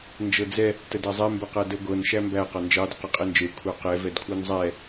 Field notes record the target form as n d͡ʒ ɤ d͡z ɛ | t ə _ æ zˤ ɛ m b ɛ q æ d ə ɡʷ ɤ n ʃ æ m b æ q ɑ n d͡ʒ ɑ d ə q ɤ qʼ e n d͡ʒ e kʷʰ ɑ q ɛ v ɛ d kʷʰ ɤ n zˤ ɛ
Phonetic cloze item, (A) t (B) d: B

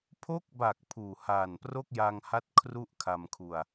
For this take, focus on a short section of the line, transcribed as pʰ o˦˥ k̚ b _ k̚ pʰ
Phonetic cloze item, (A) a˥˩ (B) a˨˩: B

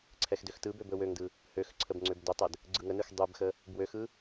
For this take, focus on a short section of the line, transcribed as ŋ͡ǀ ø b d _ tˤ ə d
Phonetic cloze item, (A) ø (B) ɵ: B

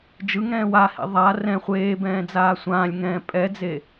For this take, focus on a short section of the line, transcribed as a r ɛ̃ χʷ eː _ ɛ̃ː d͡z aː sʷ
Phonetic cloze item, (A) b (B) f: A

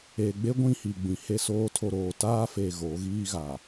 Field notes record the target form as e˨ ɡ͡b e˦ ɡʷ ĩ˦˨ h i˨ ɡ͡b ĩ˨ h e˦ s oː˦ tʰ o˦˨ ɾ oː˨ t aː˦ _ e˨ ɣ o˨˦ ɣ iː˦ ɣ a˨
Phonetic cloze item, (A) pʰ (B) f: B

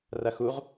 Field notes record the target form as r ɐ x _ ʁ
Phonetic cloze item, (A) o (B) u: B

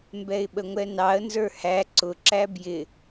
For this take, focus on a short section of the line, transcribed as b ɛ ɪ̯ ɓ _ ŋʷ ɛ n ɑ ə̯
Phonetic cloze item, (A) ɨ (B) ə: B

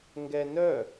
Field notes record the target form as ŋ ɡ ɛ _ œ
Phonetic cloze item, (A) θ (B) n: B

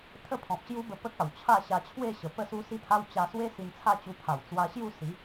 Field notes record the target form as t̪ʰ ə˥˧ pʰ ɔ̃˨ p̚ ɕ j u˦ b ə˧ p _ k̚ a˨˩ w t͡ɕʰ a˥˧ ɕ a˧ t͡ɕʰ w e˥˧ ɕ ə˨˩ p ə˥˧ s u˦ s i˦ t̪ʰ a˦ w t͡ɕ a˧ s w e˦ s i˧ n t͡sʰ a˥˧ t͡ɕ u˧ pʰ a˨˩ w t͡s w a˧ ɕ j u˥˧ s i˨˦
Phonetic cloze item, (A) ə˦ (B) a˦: A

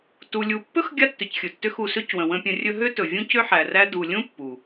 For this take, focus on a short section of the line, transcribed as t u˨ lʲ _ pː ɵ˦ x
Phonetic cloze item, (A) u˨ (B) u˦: A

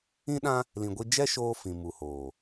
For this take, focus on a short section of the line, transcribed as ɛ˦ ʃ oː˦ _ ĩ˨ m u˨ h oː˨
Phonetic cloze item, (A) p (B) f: B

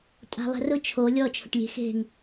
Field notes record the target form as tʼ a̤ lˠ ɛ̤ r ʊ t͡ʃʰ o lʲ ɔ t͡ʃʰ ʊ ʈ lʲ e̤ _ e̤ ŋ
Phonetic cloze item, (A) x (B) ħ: A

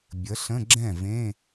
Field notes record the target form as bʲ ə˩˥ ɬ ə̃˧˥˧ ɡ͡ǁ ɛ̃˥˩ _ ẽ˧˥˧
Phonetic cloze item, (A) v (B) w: A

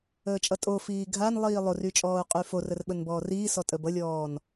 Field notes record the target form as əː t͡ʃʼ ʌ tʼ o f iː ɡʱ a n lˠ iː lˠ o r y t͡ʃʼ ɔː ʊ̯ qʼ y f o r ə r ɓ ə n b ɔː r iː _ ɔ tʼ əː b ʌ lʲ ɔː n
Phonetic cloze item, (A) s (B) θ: A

